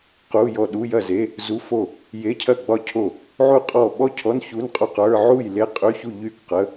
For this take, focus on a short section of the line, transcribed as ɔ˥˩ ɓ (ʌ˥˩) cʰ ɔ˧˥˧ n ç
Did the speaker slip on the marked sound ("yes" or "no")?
yes